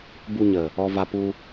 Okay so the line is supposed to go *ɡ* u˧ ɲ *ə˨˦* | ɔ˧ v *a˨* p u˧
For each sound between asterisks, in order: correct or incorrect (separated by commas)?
incorrect, incorrect, incorrect